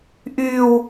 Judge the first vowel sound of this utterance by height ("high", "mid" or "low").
high